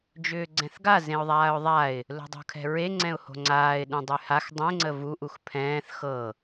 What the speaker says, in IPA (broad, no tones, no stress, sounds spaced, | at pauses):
d͡ʒ ʏː ɡ͡ǀ ɛ̃ θ ɡ a z ẽ ʊ̯ ðˤ aː ʊ̯ ðˤ a ɪ̯ | l o̤ dˤ o̤ kʰ ɛ̤ ɹ e ŋ͡ǀ ɛ̃ ʊ̯ h o̤ ŋ͡ǀ aː ɪ̯ ɗ ũ dˤ y h a x dˤ ẽ ŋ͡ǀ ə v u ʔ u x pʰ ɛ̃ː θ x ɤ